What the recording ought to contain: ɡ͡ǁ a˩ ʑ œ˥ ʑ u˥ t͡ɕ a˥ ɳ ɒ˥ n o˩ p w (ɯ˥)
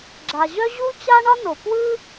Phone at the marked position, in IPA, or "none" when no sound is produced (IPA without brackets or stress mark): ɯ˥